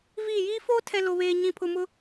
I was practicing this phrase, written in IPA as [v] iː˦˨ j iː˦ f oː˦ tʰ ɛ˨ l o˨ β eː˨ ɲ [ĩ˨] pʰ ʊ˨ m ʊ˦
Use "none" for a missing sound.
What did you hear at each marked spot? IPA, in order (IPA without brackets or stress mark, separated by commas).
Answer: v, ĩ˨